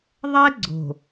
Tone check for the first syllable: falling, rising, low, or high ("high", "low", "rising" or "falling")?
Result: high